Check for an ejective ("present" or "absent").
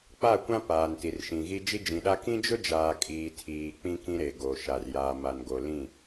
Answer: present